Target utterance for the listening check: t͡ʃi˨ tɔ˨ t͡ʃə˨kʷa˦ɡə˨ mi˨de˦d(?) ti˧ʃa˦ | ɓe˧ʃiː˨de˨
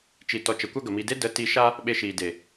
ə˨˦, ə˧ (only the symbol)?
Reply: ə˨˦